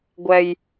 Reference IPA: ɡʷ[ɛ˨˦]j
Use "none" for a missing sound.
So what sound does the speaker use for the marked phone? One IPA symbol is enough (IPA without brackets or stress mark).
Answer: ɛ˨˩